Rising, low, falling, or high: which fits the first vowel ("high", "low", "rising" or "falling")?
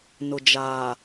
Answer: low